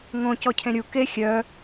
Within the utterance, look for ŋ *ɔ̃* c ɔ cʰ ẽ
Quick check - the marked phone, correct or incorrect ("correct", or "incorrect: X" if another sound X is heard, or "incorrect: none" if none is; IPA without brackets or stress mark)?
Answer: incorrect: õ